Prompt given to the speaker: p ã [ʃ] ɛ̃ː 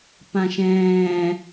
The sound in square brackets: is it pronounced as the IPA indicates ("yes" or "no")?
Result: yes